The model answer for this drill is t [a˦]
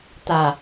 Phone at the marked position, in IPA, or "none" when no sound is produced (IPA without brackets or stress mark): a˨